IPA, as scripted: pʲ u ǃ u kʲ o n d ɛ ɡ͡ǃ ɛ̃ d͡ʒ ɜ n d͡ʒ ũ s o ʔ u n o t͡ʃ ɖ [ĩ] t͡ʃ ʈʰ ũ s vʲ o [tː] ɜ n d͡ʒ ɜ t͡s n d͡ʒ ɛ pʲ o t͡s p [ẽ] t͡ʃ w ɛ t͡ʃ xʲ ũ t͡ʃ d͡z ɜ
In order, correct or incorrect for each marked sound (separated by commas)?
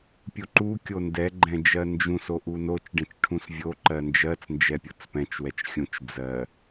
incorrect, incorrect, incorrect